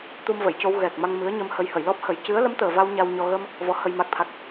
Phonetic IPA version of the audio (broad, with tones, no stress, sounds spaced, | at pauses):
t̪ u˧ m v ə˨˩˨ j c o˧ w ɣ ɛ˨˩ k̚ m a˧ ŋ m ɨ˧˥ ə̯ ɲ ə˧ m h ə˧ j h ə˨˩˨ j l ɔ˦˥ p̚ h ə˨˩˦ j c ɨ˧˥ ə̯ l ə˧˥ m t̪ əː˨˩ v a˧ w ɲ a˧ w ɲ ɔ˧ ɣ ə˧ m | v ɔ˧˥ h ə˧ j m a˦˥ k̚ t̪ʰ a˦˥ k̚